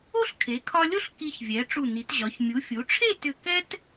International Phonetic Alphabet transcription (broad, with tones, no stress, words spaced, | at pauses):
o˥ɬkʰe˩˧kʰɒ˧lʲo˥ɬ ki˧çvʲɛ˩˧ ʈ͡ʂu˧˩ni˩˧tʑɒ˩˧ç mʲu˩˧fʲu˩˧ʈ͡ʂʰe˥˧ tʏ˧˩kɛ˥t